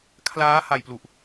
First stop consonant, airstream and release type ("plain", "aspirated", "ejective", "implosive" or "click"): aspirated